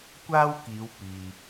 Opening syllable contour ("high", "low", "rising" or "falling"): high